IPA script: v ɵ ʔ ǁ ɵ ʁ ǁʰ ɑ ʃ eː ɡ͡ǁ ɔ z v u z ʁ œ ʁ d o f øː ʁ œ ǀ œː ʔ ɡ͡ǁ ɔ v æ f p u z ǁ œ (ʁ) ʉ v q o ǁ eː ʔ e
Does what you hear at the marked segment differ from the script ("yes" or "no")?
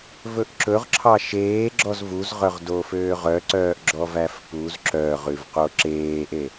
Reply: no